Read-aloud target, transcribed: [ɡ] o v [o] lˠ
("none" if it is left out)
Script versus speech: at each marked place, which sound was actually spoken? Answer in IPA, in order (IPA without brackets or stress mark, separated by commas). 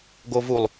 ɡ, u